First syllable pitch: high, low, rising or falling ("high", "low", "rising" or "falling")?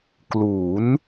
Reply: rising